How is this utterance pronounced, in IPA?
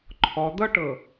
ǃʰ ɔ d̪ ʌ ʈ ɤ

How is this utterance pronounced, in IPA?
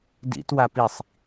d ḭ t w a p i sˤ

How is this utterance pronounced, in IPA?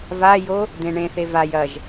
v a j o | d̪ ẽ ɳ ẽ θ e v a j ɐ ʒ

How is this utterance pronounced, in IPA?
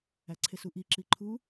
æ ǀʰ e s u ʔ i ǁ i ǃʰ u

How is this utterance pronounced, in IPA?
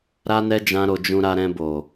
ɾ a˦ n ɛ˦ d͡ʒ ã˦ ɾ o˧ d͡ʒ ũ˧ ɾ a˧ ɾ ɛ̃˧ b o˨

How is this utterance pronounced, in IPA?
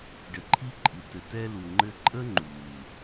ɖ ɘ˨ ǃʰ i˦ ǃʼ i˨ t ɘ˨ t ɛ˧ l u˨ ŋ͡ǃ ɘ˧ ǃʼ ə˦ ŋ͡ǃ uː˨

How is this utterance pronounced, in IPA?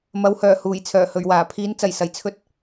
m ɐ˨˥ w h œː˨˩ h uː˨˩ j t͡sʰ œː˨˩ h ɵ˨˩ ɥ w aː˨˩ pʰ iː˨˥ n t͡s ɐ˨˩ j s ɐ˨˩ j t͡sʰ ɵ˧ t̚

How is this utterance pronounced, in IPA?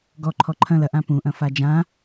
ɡ ɔ ǃʰ ɔ ǃʰ ɐ̃ l ɐ ʔ ã p ũ ʔ ɐ̃ f a d͡ʒ ã

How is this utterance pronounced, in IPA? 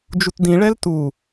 d͡ʒ u t d ĩ ɭ ɛ l t u

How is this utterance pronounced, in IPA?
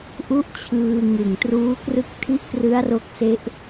ʔ u˦˥ ʔ t͡ɕʰ ɯː˧ ŋ ɯ˨˩ ŋ t r uː˦˥ k r ɯ˥˩ k̚ tʰ i˦˥ ʔ k r ɯ˦˥ a̯ r o˦˥ k̚ s e˦˥ ʔ

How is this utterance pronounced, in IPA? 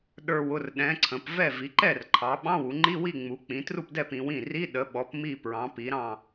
ɗ ə˞˧˩ w ʊ˥˩ r ɗ ɛ̃˩˧ ǀʰ ə̃˩˧ p v ɛ˥˩ v i˩˧ ǃ ɛ˥˩ r ǃʰ ɑ˩˧ ɓ ɑ̃˧˥˧ w u˩˧ ŋ͡ǃ i˧˥˧ w i˥˩ ŋ͡m u˩˧ k͡p ĩ˩˧ t r u˥˩ p d ɛ˥˩ p ĩ˩˧ w ĩ˥˩ r i˧˥˧ ɗ ə˩˧ ɓ ɔ˩˧ p m i˧˩ p ɹ ɑ̃˩˧ p i˩˧ ɾ ɑ̃˧˩

